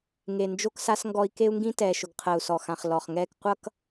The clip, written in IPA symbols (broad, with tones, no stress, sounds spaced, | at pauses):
ŋ e˨ n d͡ʒ o˦ k s a˦ s ŋ ɡ ɔ˦ i̯ k e˦ u̯ ŋ ɡ ĩ˦ t ɛː˨ ʃ ʊ˨ ɡ qʰ ɜ˨ u̯ s ɔ˨ x ã˨ χ l ɔ˨ χ ŋ ɛː˦ k qʷ ʌ˦ k